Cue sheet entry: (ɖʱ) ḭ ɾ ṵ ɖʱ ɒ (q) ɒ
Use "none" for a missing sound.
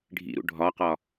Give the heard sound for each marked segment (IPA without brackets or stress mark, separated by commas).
ɖʱ, q